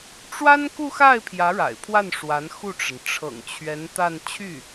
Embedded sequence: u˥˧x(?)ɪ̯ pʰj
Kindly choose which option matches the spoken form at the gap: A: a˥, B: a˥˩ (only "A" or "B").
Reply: B